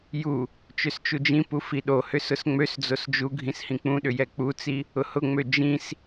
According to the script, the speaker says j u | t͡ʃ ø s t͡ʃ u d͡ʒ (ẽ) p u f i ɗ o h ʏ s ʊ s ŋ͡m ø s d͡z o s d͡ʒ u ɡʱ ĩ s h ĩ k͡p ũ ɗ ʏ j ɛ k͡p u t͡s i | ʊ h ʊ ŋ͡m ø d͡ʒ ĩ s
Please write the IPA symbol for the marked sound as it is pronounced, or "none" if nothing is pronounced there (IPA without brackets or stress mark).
ĩ